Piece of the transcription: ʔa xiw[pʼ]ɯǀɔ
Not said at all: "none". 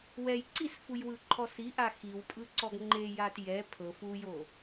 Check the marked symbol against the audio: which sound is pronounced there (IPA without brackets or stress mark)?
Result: pʼ